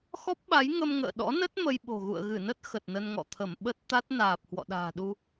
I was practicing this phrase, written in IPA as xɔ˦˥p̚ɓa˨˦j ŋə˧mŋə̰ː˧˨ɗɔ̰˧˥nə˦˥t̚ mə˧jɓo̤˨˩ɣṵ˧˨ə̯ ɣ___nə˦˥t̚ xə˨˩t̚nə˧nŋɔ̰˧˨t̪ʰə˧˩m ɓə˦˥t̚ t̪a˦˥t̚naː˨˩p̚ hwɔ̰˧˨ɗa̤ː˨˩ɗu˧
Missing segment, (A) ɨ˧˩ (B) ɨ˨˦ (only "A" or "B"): A